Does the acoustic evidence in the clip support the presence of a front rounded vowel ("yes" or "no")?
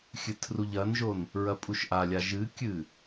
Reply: no